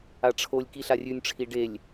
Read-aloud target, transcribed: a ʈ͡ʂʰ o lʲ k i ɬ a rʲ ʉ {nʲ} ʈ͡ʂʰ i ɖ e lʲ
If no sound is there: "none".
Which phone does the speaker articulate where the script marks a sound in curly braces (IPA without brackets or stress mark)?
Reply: nʲ